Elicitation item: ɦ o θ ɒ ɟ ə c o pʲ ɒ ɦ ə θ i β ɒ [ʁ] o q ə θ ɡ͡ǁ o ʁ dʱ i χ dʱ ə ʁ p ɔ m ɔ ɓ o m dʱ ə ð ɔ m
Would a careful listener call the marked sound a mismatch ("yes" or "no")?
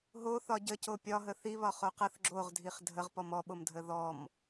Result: yes